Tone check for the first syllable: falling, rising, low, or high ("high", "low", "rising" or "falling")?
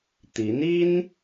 rising